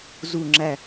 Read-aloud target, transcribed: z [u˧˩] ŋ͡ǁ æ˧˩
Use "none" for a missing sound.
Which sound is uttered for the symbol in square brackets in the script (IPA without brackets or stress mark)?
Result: u˧˩